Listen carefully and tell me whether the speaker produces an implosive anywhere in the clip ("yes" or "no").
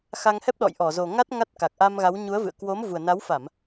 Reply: yes